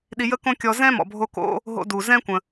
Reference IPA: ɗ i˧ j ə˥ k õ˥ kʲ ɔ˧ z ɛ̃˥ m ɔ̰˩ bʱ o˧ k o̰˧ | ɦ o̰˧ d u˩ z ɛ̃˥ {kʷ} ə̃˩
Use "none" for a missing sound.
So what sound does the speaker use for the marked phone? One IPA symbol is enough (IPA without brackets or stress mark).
kʷ